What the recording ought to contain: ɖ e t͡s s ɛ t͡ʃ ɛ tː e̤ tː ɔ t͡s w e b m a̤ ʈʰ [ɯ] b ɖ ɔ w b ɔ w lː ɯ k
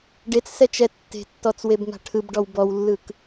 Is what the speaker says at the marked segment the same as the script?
yes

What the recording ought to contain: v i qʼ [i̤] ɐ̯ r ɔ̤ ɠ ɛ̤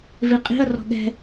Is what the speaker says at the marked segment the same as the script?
yes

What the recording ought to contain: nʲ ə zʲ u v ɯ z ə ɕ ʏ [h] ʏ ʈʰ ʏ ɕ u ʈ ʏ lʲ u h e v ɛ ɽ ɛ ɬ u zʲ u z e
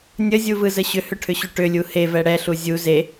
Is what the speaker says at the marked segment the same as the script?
yes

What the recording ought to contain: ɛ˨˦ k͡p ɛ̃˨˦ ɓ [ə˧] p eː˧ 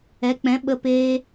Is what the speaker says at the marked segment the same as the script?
yes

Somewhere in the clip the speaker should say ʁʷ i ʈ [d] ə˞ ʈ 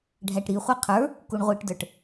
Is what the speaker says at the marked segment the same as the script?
yes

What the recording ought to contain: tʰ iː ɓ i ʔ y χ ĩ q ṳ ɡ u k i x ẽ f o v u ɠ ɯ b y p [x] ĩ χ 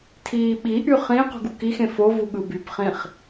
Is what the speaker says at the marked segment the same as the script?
no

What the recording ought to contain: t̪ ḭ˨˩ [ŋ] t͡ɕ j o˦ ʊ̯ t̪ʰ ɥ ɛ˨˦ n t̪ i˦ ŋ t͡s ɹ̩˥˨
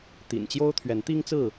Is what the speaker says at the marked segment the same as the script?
no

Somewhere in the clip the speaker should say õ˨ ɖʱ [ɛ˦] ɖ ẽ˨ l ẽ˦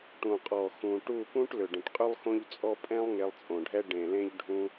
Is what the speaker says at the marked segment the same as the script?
yes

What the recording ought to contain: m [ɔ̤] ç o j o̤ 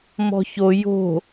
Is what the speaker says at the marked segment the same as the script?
yes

